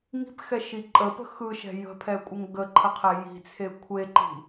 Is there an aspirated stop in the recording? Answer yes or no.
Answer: yes